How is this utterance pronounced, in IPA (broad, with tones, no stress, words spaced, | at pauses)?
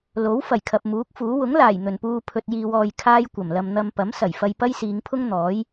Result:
lo˨˥w fɐ˨˩jkʰɐ˨p̚muː˨˥k̚fuː˨˥ wʊ˨˥ŋlaː˨˩j n̪ɵ˨˩npuː˧ pʰɵ˧t̚jiː˧wɔː˧j kʰaː˥jkʷɐ˨˩mlɐ˧m n̪ɐ˧m pɐ˨˥msɐ˨˩j fɐ˧jpɐ˥jsiː˨˧ŋpʰʊ˥ŋ n̪ɔː˨˥j